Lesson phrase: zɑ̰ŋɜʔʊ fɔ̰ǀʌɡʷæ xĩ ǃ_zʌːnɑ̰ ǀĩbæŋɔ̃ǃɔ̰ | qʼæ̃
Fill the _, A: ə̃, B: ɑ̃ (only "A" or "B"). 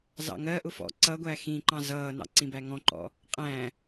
B